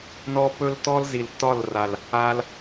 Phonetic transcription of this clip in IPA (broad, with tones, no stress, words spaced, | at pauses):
nɔ˦pɵ˦ltɔ˦l zi˨ltɒ˦˨lra˨l | a˧l